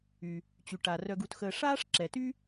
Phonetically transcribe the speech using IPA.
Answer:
y˩ | t͡ɕy˩ʈa˩ rœ˧ɡu˧txəː˧ ʂaː˥ʂǁɛ˩ty˥

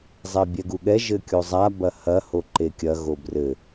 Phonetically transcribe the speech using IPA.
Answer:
zˤɛbʲɛɡuɠɛ ʒɘkʲozˤa bɐhɐ hoǃekʲɐ ɣobrɘ

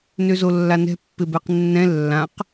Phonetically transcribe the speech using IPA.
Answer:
nøzolːanɛ̤ pːɪbɛqnːɛ̃ lːãq

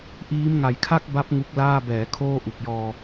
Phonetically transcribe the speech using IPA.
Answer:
ʔiː˦˥mŋa˨˩jkʰa˥˩k̚ba˦˥p̚ ŋu˦˥k̚laː˥˩ bɛː˩˦ kʰoː˥˩ʔu˨˩k̚jɔː˧

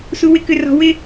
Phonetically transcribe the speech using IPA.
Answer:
su˧wɪ˦kʏ˧rɔ̤˧ wɪ˦

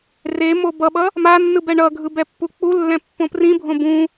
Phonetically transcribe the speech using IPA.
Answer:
re mobʌɓʌ | manːɯ bɛɳʌɡʱɯ bɛpːuk͡pulːɛ̃ pːõprĩbʱõ bũ

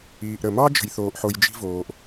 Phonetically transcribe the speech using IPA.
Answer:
iː˨ʔ ɾə˨mɑ˦ d͡ʒə̤˨jθoː˨ʔħo˨j d͡ʒi̤˦voː˨ʔ

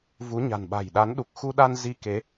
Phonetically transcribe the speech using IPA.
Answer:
vu˨˦ɲa̤˨˩n ɓa̤˨˩jɗa˨˦n ɗu˨˩k̚xu˧ɗa˧n zi˧ke˨˦

